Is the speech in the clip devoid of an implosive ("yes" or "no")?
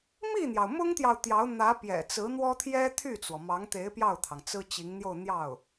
yes